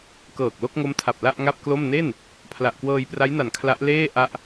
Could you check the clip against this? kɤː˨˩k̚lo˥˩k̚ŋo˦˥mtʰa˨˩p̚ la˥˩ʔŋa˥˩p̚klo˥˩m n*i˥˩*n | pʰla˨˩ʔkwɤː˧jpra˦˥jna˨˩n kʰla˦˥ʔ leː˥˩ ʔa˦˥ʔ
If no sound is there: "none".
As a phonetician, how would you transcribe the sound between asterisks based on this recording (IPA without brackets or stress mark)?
e˥˩